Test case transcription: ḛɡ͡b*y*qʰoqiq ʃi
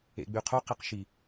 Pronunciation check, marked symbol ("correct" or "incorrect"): correct